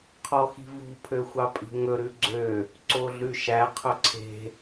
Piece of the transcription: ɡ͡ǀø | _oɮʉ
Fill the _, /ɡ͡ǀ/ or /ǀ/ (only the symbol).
ǀ